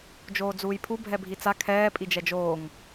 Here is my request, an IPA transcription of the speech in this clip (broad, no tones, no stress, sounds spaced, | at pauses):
d͡ʒ oː d͡z uː j pʰ u bʱ ɛ bʱ i t͡s a kʰ ɛː pʼ i d͡ʒ ɛ d͡ʒ oː ŋ